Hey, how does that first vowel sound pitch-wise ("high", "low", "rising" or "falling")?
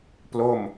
falling